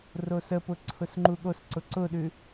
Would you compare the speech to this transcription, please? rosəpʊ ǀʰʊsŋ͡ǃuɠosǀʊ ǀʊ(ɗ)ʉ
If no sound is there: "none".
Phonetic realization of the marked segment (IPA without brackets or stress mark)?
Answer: ɗ